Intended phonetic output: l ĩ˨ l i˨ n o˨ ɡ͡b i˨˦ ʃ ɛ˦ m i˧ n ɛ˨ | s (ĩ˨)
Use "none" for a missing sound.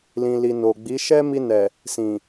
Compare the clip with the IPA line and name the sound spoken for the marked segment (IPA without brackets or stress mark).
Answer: ĩ˨